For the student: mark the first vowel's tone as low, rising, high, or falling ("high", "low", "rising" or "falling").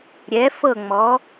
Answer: rising